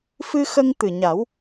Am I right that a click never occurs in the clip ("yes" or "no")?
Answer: yes